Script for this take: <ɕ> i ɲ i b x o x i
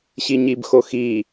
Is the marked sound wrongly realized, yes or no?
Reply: no